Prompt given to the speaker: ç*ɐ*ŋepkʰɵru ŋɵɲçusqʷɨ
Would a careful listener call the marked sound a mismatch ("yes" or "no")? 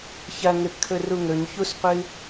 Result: no